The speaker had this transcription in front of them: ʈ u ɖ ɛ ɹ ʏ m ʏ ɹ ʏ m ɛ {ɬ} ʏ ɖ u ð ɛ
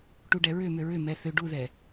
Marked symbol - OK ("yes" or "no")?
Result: no